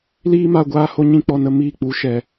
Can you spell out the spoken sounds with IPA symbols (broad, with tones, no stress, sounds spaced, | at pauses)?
l iː˦ m a˧ ɡʷ aː˧ h o˧ ɲ ĩ˧ k͡p ɔ˧ n ə˧ m iː˦˨ k͡p u˨˦ ʃ ɛ˨